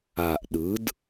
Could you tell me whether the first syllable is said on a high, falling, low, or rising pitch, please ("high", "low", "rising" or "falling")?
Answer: low